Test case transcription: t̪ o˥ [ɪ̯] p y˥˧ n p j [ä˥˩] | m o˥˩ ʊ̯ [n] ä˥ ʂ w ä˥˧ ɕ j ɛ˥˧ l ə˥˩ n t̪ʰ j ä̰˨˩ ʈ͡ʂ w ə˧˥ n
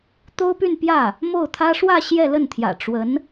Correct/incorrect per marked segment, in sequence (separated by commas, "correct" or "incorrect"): incorrect, correct, incorrect